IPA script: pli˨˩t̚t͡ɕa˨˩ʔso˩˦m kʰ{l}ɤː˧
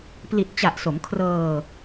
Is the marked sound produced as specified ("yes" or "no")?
no